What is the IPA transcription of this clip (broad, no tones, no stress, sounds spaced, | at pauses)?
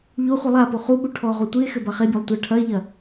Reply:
ʎ o χʷ ɨ lˠ a p o χ u ɓ u ʈʰ ɔ ʁ o tʷ i e̯ x ɘ b a χ e bʲ o lˠ tʷ ɐ ʈʰ ɐ e̯ ʎ ɐ